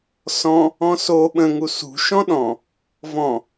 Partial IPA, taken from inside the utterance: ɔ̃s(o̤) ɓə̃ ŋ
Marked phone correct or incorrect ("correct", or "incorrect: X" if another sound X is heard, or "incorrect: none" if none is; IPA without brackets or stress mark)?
incorrect: o